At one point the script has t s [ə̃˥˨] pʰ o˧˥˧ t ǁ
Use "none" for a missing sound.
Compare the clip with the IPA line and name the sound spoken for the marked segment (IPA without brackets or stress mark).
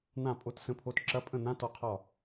ə̃˧˥˧